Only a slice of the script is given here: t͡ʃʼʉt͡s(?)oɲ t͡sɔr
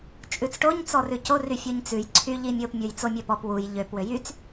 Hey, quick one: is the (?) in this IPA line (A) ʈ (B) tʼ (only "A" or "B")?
A